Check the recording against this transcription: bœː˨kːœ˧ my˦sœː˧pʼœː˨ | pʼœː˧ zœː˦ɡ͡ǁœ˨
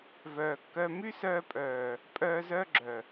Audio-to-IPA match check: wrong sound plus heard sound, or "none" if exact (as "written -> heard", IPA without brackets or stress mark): b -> v